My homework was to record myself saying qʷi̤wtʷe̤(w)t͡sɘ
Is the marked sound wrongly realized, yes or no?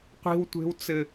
no